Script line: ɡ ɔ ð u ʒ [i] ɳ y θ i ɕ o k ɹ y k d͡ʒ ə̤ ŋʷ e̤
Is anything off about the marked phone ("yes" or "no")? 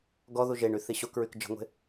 yes